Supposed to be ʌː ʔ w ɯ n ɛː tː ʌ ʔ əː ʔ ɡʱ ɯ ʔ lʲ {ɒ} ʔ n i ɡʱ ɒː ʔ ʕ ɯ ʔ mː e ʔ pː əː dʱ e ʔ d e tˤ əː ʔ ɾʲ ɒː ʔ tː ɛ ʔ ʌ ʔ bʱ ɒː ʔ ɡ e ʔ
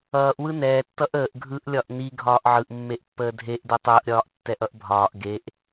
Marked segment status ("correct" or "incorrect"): correct